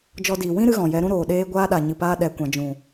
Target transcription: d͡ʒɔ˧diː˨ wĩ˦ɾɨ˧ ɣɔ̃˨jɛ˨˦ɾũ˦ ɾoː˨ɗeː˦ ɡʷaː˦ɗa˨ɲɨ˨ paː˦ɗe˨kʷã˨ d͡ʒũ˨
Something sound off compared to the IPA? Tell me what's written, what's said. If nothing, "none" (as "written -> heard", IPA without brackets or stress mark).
e˨ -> ɛ˨